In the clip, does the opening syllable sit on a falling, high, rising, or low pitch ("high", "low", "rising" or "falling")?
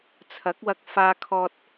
rising